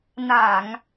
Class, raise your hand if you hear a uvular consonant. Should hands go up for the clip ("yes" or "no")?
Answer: no